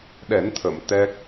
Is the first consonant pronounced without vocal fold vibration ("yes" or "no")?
no